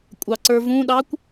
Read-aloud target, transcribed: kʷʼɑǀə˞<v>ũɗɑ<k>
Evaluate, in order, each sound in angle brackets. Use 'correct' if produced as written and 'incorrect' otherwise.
correct, incorrect: kʷ

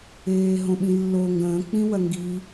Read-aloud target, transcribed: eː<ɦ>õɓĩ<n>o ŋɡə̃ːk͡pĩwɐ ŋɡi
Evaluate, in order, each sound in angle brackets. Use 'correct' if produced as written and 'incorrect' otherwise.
correct, incorrect: lː

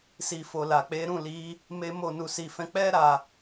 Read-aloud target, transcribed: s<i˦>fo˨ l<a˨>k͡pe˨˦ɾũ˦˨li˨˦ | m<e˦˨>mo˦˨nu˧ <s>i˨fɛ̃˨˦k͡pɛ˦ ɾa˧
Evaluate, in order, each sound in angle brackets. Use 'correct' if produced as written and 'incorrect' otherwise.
incorrect: i˨, correct, incorrect: e˦, correct

